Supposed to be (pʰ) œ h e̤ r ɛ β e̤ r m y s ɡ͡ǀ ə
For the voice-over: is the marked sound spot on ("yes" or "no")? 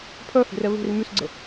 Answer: yes